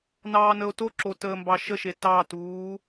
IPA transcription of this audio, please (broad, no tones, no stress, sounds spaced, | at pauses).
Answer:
n ɑː n ə o̯ t o ǁ o t əː m b ɑ ʃ ə ʃ e t ɑ t uː